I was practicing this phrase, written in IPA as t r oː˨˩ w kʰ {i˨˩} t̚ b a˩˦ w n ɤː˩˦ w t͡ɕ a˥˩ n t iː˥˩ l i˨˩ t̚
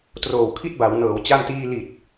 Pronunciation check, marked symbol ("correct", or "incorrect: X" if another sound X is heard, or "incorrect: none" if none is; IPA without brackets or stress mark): incorrect: i˥˩